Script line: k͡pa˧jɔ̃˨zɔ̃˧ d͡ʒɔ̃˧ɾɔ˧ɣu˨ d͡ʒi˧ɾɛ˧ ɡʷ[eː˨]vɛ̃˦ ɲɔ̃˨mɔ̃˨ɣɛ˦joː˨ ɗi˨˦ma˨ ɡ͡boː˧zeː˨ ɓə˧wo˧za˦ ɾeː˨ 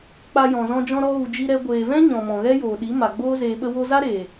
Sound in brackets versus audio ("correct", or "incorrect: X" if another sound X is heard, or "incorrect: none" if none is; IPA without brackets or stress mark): correct